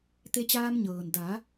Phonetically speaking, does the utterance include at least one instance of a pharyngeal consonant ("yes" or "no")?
no